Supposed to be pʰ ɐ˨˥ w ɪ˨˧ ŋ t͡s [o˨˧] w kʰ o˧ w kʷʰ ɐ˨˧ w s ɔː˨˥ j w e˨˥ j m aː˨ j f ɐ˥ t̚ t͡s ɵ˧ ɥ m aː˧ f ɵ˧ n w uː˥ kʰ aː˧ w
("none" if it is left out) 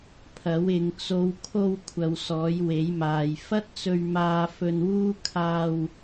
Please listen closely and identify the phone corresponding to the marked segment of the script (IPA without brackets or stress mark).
o˨˧